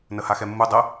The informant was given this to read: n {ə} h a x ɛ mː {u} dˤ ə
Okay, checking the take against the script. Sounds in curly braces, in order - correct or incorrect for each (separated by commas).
correct, correct